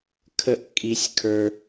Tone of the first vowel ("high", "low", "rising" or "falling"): high